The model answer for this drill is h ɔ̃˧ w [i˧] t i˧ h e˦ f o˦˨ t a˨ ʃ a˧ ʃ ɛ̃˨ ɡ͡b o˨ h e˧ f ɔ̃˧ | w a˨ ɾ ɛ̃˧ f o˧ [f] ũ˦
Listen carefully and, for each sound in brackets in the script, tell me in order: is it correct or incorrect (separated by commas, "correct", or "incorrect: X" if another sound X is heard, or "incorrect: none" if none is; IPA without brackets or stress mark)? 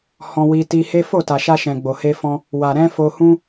correct, incorrect: h